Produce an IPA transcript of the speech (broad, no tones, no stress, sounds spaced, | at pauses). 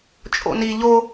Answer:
t͡ʃʼ o̰ n i ʎ o